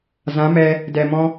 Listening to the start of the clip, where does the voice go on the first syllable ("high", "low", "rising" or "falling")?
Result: rising